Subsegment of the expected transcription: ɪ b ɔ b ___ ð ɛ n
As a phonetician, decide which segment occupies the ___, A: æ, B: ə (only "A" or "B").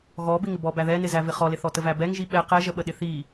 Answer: A